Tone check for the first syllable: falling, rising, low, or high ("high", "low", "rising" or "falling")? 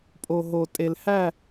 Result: low